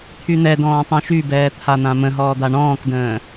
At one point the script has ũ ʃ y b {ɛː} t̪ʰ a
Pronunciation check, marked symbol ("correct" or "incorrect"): correct